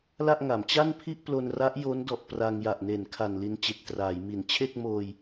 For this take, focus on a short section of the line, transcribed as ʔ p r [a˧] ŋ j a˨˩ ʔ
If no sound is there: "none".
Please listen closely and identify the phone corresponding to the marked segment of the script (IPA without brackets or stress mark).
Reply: a˧